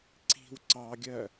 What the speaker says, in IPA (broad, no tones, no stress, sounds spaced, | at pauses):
ǀ i̤ w ǀ ɑ ɡʲ ɜ